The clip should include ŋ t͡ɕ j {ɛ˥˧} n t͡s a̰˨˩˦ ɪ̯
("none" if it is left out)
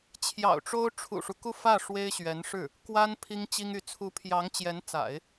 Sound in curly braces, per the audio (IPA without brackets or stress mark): ɛ˧˥